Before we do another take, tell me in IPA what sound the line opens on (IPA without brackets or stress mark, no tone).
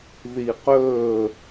ð